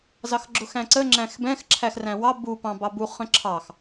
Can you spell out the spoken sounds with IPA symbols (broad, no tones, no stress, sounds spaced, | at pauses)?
z ɑ x ɡ͡ǁ ʊ x æ̃ ǀ ə ŋ͡ǁ æ̃ x b ɛ̃ x ǁʰ æ x r æ̃ w ɑ b u p ɑ̃ b ɑ b u χ ə̃ ǁʰ ɑ x